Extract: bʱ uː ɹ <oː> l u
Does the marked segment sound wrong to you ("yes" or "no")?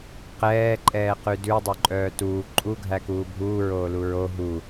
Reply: no